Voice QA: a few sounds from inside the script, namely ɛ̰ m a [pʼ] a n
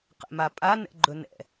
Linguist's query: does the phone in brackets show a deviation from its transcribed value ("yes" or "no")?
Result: no